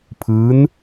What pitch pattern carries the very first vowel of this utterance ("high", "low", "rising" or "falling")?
rising